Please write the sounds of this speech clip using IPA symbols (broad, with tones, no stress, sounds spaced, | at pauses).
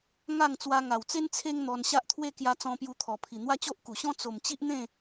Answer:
ŋ a˥˧ ŋ t͡s w a˧ ŋ a˨˩ w t͡s e˦ n t͡sʰ e˦ ŋ n̪ ɔ˧ n ɕ a˦ ʔ t̪ʰ w e˦ k j a˧ t͡s ɔ̃˧ p j u˧ t̪ʰ ɔ˨˩ pʰ i˨˩ n̪ w a˦ t͡ɕ o˦ ʔ k u˨˩ ɕ ɔ̃˦ t͡s o˨˩ m t͡ɕ i˦ ʔ n̪ ẽ˥˧